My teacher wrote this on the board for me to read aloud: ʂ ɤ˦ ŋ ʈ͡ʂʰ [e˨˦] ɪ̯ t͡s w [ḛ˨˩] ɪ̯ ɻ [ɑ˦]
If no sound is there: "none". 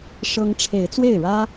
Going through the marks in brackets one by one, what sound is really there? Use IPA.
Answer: e˨˦, e˥˨, ä˦

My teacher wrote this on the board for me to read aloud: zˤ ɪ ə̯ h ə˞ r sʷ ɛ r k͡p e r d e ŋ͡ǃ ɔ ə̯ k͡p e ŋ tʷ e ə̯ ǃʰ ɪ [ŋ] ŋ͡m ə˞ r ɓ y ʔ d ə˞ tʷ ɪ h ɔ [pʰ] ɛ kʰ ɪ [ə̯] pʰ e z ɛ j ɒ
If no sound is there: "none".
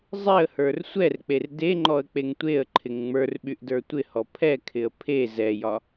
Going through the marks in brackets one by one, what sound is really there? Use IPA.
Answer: ŋ, pʰ, ə̯

